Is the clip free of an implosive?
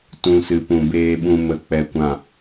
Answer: no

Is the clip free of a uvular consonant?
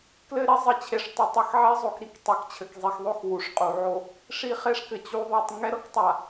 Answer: no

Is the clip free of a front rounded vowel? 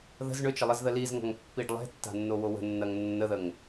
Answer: no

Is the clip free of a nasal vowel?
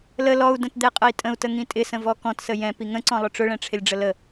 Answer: no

